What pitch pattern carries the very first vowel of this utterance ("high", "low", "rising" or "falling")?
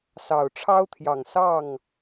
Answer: low